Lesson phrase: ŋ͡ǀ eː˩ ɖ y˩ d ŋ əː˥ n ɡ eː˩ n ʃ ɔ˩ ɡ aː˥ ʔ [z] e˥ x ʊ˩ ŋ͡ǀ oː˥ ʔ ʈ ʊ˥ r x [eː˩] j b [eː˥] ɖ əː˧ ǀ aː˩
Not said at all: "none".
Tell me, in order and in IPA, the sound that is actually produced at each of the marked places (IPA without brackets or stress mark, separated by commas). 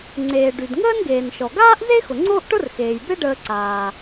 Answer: z, eː˩, e˥